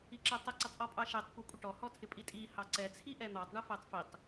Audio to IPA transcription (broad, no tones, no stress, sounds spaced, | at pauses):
i ǁ ɛ tˤ ə ǀ ə tˤ ʔ ɔ pʼ ɑ ʃ ɛ tˤ kʷ ɛ kʷʼ ə ʈ ɔ h ɔ tʰ ɪ pʼ i tʼ i h ɑ ǀ ɛ t͡sʰ i ʔ ɛ n̪ ɑ tˤ ɳ ə f ɛ tˤ f i tˤ